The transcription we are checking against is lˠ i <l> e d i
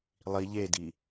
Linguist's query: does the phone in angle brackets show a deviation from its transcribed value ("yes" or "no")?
yes